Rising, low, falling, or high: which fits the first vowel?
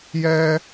high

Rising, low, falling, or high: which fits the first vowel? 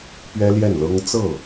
high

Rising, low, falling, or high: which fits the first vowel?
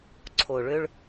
low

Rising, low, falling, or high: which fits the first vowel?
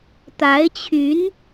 rising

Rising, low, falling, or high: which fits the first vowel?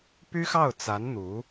high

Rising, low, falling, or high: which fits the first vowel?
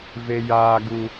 high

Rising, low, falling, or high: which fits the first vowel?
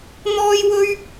high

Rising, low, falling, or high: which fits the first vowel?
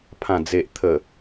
low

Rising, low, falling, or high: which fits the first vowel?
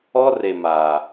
high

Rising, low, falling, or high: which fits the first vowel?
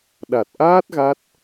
low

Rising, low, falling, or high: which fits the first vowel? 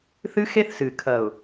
high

